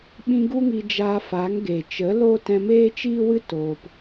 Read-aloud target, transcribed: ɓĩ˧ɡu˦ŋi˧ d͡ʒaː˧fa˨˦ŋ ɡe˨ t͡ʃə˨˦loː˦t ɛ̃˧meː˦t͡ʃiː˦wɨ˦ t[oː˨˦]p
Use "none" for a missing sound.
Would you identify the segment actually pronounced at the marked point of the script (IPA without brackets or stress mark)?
oː˧